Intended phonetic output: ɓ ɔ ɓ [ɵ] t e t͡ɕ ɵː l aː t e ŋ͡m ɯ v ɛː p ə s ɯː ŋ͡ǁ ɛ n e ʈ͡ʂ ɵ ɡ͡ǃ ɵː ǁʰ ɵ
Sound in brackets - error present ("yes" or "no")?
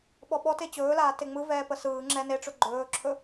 yes